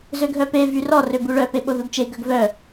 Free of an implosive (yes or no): no